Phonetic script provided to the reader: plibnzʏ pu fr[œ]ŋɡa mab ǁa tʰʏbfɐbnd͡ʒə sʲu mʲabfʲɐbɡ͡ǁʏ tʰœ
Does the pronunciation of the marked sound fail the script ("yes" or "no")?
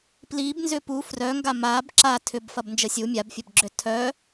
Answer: no